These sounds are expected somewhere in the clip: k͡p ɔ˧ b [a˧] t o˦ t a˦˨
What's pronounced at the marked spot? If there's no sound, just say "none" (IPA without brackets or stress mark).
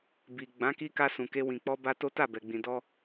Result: a˧